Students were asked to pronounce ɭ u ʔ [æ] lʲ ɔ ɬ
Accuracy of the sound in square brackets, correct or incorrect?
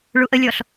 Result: incorrect